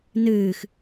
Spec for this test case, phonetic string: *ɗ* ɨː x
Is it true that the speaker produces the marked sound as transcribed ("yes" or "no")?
no